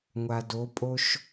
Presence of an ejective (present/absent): present